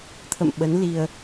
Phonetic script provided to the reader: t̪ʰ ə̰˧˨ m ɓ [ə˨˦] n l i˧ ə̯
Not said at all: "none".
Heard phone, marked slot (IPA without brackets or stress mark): ə˨˦